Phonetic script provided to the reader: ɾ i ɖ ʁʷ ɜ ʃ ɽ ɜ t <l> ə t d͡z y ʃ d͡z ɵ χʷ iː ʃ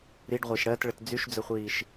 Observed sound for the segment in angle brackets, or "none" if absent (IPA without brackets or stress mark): ɭ